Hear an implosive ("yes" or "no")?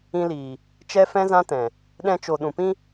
yes